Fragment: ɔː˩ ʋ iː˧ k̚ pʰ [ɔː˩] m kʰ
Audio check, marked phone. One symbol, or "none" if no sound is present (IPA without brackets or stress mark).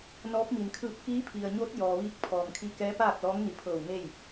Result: ɔː˩